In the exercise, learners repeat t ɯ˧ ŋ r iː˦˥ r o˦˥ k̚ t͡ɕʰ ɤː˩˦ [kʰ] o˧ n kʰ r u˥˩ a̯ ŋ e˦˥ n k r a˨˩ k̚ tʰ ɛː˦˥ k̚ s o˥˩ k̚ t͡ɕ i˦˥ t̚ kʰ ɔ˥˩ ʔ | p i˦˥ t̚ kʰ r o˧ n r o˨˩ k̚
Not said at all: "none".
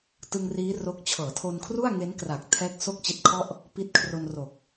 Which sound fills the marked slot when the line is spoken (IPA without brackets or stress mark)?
tʰ